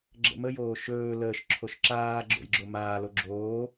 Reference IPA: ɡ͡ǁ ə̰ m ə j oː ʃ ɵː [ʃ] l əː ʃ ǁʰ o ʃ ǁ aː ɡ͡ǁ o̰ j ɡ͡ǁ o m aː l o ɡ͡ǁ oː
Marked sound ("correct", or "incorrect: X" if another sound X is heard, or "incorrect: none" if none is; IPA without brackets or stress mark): incorrect: none